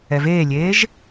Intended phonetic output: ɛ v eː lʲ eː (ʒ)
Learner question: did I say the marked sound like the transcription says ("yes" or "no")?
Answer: yes